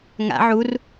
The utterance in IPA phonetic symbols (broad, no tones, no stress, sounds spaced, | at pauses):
ŋ a̰ ʕ u r